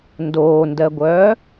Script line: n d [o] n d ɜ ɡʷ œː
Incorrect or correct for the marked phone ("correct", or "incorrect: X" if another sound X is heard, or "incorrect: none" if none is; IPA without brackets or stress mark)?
incorrect: oː